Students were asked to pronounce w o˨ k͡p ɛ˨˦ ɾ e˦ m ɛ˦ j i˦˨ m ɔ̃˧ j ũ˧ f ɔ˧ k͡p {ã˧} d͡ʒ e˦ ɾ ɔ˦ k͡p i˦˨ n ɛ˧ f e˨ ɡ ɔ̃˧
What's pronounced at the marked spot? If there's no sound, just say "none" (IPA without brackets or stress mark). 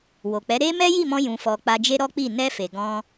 a˧